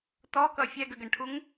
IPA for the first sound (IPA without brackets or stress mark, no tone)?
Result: t